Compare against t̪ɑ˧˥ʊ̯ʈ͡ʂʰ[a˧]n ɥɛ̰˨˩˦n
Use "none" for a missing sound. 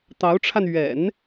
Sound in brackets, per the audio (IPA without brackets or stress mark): a˧